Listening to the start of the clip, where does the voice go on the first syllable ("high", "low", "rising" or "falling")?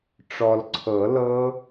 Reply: low